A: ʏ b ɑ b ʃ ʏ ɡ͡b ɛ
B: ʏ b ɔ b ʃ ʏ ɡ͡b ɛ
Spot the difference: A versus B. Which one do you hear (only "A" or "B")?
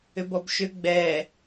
B